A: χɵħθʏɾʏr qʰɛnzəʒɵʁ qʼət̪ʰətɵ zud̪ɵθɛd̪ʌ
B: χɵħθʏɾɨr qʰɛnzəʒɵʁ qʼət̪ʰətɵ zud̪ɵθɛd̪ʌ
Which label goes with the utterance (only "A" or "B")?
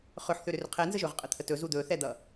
A